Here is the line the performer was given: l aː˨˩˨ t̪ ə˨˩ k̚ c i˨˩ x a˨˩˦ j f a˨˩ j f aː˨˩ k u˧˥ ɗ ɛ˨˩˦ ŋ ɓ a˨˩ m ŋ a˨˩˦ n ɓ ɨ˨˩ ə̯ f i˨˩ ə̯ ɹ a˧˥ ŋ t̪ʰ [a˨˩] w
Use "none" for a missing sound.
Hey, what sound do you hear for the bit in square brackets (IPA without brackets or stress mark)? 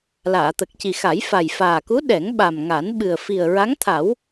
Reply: a˨˩˦